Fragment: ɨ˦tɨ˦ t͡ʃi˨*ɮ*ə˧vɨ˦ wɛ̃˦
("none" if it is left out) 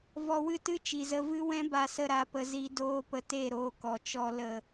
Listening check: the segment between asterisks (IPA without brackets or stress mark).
z